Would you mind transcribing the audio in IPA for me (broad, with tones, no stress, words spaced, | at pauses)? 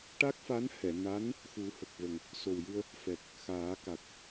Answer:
ʈa˦˥k̚fa˧˥nhɛ˨˩˨na˧˥n | xu˨˩˦ hə˨˩k̚və˨˩ŋ | so˨˩wjɨ˧ə̯ | fɛ˨˩k̚ | xaː˨˩˦ka˨˩k̚